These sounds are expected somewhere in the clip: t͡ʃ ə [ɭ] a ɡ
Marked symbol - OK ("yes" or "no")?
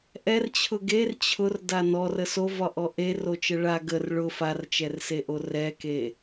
yes